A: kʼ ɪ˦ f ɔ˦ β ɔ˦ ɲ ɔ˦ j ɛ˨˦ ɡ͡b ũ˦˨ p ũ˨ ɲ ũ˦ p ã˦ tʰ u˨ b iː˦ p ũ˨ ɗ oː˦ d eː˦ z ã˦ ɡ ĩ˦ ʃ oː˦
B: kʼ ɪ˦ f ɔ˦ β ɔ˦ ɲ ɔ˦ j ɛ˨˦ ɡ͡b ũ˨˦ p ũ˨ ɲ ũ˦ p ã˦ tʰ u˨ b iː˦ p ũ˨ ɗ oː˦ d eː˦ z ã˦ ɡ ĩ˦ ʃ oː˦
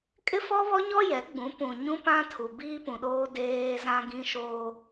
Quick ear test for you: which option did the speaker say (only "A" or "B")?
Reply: B